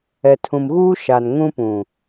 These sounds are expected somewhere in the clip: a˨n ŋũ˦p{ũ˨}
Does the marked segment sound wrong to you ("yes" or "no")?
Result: no